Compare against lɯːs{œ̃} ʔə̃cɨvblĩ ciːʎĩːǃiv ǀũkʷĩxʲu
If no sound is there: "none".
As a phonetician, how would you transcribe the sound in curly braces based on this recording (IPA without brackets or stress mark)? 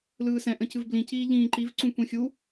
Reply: ɛ̃